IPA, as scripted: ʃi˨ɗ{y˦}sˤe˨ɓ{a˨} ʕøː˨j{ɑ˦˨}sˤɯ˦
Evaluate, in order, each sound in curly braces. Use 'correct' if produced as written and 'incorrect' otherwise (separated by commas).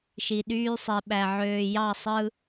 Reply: incorrect, incorrect, correct